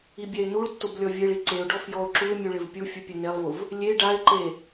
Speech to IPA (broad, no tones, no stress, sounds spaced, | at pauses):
i bʲ ɛ ɪ̯ n u ɭ tː o b lʲ ɔ vʲ e ɭ i ǀ e ʊ̯ ɖ ɔ f j ɔ ʊ̯ ǁ u ɪ̯ mʲ u ɭ ɪ v pʲ u fʲ u pʲ ɛ n e lˠ v ʊ v | lʲ e ɖ a ɪ̯ ǃ e